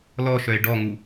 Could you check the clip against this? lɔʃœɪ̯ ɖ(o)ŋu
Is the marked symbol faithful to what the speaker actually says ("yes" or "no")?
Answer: no